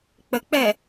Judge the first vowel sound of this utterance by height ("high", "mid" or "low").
mid